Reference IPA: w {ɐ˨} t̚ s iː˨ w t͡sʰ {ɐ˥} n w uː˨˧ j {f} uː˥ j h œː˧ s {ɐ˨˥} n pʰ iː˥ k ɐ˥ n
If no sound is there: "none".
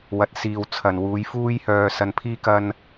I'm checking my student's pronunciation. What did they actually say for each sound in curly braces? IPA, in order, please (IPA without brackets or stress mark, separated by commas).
ɐ˨, ɐ˨, f, ɐ˧